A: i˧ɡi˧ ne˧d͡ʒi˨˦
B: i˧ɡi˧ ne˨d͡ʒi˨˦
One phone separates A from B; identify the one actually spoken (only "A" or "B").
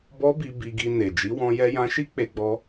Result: B